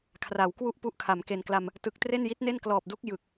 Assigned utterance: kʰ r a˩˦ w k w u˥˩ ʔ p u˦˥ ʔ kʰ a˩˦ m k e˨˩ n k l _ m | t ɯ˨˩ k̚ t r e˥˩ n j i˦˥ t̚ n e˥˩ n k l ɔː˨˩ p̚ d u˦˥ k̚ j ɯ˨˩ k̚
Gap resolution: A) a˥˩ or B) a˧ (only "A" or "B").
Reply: B